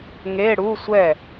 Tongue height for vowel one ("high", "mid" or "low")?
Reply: mid